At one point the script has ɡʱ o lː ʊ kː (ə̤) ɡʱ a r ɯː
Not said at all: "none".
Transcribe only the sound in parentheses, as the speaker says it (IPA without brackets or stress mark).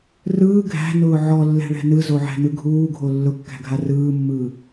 æ̤